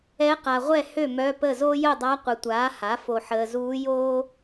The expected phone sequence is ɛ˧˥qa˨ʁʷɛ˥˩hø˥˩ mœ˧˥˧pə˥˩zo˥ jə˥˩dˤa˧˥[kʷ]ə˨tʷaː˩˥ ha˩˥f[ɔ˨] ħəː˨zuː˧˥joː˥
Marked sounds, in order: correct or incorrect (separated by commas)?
incorrect, incorrect